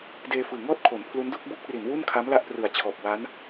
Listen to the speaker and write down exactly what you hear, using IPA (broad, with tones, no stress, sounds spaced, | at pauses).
d eː˧ f ɯː˨˩ ŋ ɔː˥˩ t̚ kʰ o˩˦ n pʰ l u˦˥ n d u˥˩ k̚ b uː˦˥ k̚ r i˩˦ n w u˥˩ n kʰ a˦˥ m l a˥˩ ʔ p r ɯ˨˩ a̯ t͡ɕʰ ɔː˨˩ p̚ w a˦˥ n